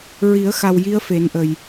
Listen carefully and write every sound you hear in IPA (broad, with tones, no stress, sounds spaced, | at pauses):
ɹ i˨˩˦ ə̯ x a˨˩ w j i˧˥ ə̯ f e˨˩˦ n ʔ ə˨˩ j